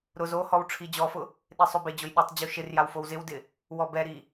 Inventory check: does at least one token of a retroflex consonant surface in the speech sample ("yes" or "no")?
yes